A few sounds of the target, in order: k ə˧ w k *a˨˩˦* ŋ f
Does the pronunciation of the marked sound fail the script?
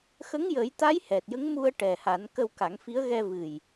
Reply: no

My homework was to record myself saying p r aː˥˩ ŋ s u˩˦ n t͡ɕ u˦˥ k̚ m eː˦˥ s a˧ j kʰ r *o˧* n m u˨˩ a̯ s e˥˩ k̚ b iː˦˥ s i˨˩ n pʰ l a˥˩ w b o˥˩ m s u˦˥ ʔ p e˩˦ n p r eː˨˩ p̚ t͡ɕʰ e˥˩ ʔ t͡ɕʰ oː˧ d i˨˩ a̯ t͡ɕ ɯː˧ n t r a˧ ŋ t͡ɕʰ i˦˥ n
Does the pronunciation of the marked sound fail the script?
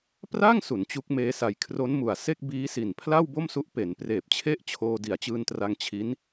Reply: yes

